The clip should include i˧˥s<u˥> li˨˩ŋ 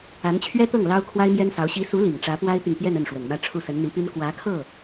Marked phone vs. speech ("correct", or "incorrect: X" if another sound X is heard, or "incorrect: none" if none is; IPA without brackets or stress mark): incorrect: u˧˥